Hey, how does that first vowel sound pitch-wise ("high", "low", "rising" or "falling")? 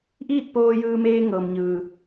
falling